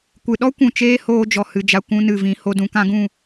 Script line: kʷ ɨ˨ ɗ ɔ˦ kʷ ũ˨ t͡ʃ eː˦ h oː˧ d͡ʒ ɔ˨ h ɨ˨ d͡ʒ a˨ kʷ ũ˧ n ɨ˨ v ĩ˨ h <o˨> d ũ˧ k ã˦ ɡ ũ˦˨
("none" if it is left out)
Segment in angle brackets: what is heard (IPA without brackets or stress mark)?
o˧